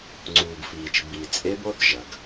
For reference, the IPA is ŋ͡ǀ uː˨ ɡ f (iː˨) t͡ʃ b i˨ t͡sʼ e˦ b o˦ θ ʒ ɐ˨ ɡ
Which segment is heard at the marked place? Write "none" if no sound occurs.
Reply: iː˨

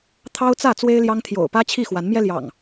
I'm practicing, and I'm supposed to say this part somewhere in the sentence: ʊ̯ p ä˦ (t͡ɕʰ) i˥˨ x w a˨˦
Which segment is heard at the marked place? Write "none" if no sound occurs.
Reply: t͡ɕʰ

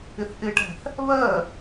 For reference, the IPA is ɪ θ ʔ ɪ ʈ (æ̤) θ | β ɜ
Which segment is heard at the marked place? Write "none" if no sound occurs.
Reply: æ̤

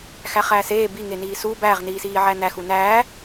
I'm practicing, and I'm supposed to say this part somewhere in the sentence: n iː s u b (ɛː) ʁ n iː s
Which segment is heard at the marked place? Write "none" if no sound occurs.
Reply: æː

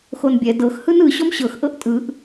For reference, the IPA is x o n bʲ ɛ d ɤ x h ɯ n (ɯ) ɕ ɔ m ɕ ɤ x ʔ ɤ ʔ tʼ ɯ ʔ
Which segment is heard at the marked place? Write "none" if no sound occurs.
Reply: ɯ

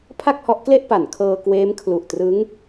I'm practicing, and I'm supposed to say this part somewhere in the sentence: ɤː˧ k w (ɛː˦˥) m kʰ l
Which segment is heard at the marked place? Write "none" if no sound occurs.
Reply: eː˦˥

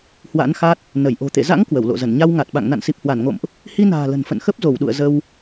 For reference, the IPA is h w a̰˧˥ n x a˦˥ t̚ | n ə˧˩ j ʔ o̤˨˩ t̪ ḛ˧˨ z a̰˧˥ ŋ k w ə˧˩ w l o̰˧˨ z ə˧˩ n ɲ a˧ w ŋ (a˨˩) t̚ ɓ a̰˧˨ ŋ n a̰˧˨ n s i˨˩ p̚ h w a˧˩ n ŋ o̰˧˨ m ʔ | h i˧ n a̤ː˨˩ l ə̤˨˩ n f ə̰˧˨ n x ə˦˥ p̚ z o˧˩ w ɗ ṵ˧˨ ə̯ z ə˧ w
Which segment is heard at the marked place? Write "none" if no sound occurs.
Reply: a˨˩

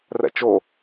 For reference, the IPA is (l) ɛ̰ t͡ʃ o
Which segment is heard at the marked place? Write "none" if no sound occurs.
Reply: r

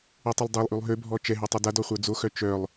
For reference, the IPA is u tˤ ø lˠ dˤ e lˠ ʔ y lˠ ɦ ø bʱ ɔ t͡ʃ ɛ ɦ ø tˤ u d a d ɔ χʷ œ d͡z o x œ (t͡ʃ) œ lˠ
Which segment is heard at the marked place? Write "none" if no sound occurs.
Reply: t͡ʃ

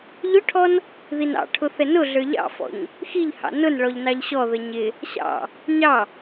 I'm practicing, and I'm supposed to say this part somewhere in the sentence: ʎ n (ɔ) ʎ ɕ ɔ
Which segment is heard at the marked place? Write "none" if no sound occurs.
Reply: ɑ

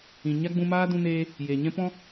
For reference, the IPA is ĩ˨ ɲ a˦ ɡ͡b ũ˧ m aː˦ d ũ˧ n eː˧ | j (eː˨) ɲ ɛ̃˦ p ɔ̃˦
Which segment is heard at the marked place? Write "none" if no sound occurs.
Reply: e˨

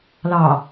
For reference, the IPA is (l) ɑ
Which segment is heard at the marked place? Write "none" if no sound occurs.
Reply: l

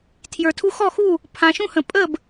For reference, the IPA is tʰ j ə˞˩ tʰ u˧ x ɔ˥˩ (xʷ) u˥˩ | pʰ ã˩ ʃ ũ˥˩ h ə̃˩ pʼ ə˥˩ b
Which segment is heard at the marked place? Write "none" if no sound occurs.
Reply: x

